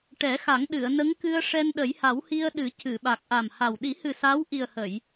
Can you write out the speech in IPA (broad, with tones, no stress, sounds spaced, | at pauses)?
ʈ ɛ˨˩˦ x a˨˩˦ ŋ ɗ ɨ˨˩˨ ə̯ n ə˧˥ ŋ k ɨ˧ ə̯ ʂ ɛ˧ n ɗ ə˨˩˦ j h a˨˩˦ w h i˧ ə̯ ɗ ɨ˨˩˦ c ɨ˨˩˨ ɓ a˨˩ k̚ ʔ a˨˩ m h a˨˩ w ɗ i˨˩˦ h ɨ˨˩ s a˧˥ w ʔ i˨˩ ə̯ h ə˨˩˨ j